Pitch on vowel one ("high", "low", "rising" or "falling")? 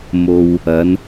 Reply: low